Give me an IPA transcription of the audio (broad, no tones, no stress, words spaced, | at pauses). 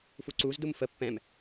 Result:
fuǀuzdum fə pːɛ̃m